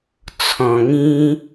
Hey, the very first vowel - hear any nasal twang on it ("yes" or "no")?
yes